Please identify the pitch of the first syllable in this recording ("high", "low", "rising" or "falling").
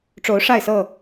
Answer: rising